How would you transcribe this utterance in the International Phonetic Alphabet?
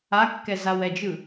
a kː ɛ z a w ɛ d͡ʒ ɯ

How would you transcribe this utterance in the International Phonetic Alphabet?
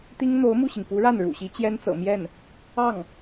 t̪ i˥ ŋ n̪ o˧˥ ʊ̯ m u˥˩ ɕ i˩ ŋ p u˧˥ ɻ a˥˩ n ɻ ṵ˨˩ ɕ i˧˥ t͡ɕ j ɛ˥ n t͡s ɤ̰˨˩ m j ɛ˥˩ n | ɑ˥˩ ŋ

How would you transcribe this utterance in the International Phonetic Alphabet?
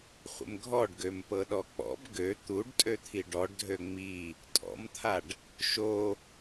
χʷ ə̰ m ɡʱ ɔ ɖ ɡ ø m p ɤ ɗ ɔ k͡p ɔ̰ b ɡ ø t̪ u ɖ tʼ ø t̪ʰ i ɖ ɔ ɖ dʱ ø ŋ͡m i | tʼ ɔ̰ m t̪ʰ a ɖ | ʃ o

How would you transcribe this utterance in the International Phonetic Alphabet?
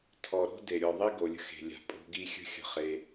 tʰ ɔ˨ ɾ o̤˦ d e˨ ɾʲ ɔ˨ ðˤ i˦ ɡ o˨ lʲ ə̤˦ x e̤˨ lʲ a̤˨ pʼ o̤˧ ɡ i˧ xʲ ə̤˦ xʲ ə̤˧ χ e˧

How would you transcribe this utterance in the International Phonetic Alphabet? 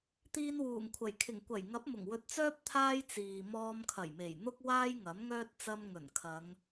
t̪ iː˧ n w uː˨˩ ŋ kʷʰ ɐ˨˩ j kʰ ɪ˨˩ ŋ kʷ ɐ˨˩ j ŋ ɐ˨˥ p̚ m ʊ˨˩ ŋ w ɵ˧ t̚ t͡s œː˥ p̚ t̪ʰ aː˥ j t͡s iː˨ m ɔː˧ m kʰ ɐ˨˩ j m e˨˩ j n̪ ʊ˥ k̚ w aː˥ j ŋ ɐ˨˥ m ŋ œː˥ t̚ t͡s ɐ˧ m ŋ ɵ˨˩ n kʰ ɐ˨˧ ŋ

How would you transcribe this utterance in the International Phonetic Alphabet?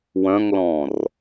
w œ̃ ŋ l ɔ̃ː r

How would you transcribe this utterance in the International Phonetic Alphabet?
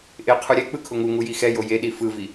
ʔ ɪ qʰ u ɾʲ ɛ k͡p ɯ kʰ ʊ ŋ u ŋ u j i x ɛ j o j e ɗ i f ɯ v i

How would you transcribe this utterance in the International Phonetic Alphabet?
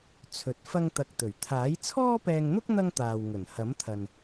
t͡sʰ ɵ˨˥ t̚ f ɐ˥ ŋ t̪ ɐ˧ k̚ t̪ ɵ˨˩ ɥ t̪ʰ aː˨˥ j t͡sʰ ɔː˥ p ɛː˧ ŋ n̪ ʊ˥ k̚ n̪ ɐ˥ ŋ t̪ aː˨ w ŋ ɵ˨˩ n h ɐ˨˥ m t̪ʰ ɐ˨ n

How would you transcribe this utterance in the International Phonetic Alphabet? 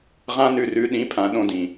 ʁ ã˦ n ʉ˧ r ʉ˨˦ ɗ ĩ˨˦ pʰ ã˨ ɗ õ˧ d ĩ˨

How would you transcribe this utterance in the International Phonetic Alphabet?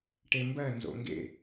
ʈ e m b ɜ n z o̰ ŋ ɡ ḛ

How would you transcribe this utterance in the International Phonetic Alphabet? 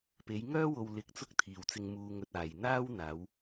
p e˨˧ j ŋ œː˥ w o˧ w l ɪ˧ k̚ t͡s ʊ˥ k̚ t̪ʰ iː˨ w t͡s ɪ˧ ŋ m uː˧ ŋ ɵ˧ t̚ aː˨ j n̪ aː˥ w n̪ aː˨˧ w

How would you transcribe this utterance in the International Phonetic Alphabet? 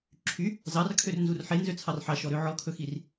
ǁʰ y | z ɑ r kʰ ø r n z u r ħ e n z ø t͡sʰ ɑ r ħ ɑ ʃ ɔ ɾ ø ʕ ɔ kʰ ɵ x i r

